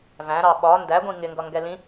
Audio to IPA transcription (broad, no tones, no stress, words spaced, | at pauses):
væ̃ɾɑ ɓɒ ndæɡʷĩ ŋɪŋɡʌŋɡɛ lĩ